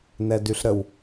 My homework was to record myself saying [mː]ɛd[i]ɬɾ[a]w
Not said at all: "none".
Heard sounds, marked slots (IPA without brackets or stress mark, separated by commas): n, y, ə